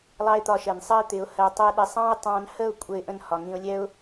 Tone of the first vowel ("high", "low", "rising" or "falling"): high